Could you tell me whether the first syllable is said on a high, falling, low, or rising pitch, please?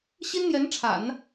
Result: high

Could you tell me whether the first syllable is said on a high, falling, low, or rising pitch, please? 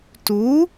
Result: rising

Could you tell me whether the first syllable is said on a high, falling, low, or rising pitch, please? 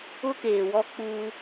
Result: high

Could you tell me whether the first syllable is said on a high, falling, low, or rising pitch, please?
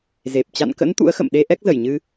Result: low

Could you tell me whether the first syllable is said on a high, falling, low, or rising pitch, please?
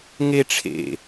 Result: high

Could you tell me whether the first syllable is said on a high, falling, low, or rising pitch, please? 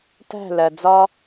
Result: falling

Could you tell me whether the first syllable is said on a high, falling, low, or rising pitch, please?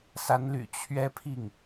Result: rising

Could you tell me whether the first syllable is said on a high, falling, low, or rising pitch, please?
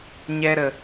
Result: high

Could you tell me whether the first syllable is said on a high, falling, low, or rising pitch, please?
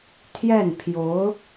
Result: falling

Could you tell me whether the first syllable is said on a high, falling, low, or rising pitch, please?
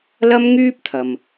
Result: high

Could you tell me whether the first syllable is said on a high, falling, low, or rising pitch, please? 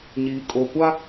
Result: low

